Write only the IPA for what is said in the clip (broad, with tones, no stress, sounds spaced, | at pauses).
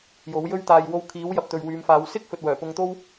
j o˨˥ w j ɵ˥ ɥ t̪ aː˧ j w o˧ w kʰ iː˨˥ w j ɐ˨ p̚ t̪ ɵ˨ ɥ w yː˨˧ m f aː˨˧ w s ɪ˥ k̚ f ɵ˨ t̚ w œː˨˩ p ʊ˧ ŋ t̪ o˥ w